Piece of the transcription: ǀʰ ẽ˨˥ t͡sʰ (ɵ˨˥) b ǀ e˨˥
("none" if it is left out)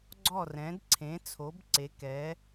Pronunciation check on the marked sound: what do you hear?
o˨˥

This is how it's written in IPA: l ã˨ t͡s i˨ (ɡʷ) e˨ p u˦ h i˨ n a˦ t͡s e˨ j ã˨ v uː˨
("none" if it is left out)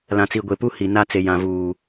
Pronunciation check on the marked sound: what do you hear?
ɡʷ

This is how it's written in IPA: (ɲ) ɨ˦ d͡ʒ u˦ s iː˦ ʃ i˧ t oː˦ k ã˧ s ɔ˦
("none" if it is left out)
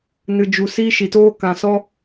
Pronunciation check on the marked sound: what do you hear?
n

